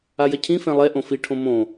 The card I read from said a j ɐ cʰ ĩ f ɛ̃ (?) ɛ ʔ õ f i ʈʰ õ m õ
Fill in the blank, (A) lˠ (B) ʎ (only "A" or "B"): A